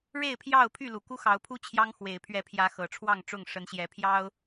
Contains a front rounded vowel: yes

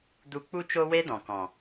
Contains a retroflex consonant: no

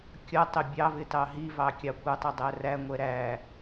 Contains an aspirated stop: no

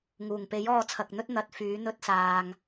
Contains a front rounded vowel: yes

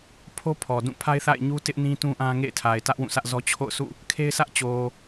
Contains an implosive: no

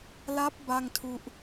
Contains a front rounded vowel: no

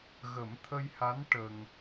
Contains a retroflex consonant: yes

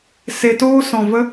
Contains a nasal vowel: yes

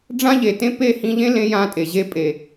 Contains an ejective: yes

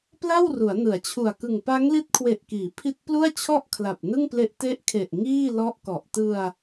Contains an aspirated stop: yes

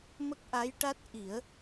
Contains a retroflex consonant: yes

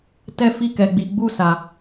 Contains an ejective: no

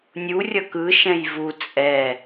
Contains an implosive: no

